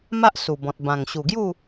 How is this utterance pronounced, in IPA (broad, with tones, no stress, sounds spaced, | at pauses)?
m a˦ ʔ s u˨˩ b ɔ̃˨ t̚ b ã˨˩ ŋ ɕ u˨˩ ɡ j u˥˧